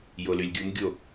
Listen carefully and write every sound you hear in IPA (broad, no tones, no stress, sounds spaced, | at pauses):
j o l y lʲ ɡʲ u m ɡʲ o